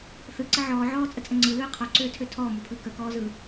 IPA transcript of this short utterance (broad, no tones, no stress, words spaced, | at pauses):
θɯǀə ʕɔː ʕɔːt͡sʼət͡sʼə ŋ͡ǀɯlɯː qʰɔǀøːtʰø tʰɔːmopʰɯː kəkɔːzɯ